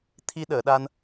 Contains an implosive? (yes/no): yes